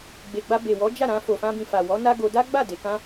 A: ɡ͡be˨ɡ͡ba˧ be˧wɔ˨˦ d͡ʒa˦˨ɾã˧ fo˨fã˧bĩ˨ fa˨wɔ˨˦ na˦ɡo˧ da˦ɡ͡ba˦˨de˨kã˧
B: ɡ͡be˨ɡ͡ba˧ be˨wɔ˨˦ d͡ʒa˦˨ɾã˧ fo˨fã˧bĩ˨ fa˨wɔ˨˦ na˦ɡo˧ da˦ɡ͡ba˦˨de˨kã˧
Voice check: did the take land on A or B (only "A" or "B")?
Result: B